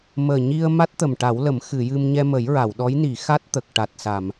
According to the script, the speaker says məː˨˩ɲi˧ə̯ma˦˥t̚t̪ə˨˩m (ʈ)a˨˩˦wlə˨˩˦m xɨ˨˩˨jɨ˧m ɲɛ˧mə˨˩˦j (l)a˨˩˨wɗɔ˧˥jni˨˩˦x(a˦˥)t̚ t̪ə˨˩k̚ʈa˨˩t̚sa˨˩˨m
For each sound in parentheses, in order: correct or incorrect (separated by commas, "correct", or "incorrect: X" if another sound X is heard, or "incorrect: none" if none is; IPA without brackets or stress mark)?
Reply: correct, incorrect: ɹ, correct